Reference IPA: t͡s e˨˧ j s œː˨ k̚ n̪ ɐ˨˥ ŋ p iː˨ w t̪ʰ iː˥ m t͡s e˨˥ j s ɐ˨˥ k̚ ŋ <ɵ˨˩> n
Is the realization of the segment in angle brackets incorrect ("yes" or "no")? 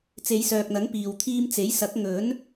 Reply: yes